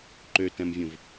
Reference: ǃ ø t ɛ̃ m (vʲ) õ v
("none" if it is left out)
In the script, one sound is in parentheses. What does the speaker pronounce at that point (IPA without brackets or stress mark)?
vʲ